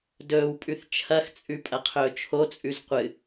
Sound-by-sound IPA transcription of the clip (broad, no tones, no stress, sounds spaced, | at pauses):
d ɵː w pʼ ʉ θ t͡ʃʰ ɐ x t͡sʼ ʉ pʼ ɐ qʰ ɵː t͡ʃʰ o t͡sʼ ʉ z qʷ ɨ